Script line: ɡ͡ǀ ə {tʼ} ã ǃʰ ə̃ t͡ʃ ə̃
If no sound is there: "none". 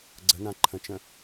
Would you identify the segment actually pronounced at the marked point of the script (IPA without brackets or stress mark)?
n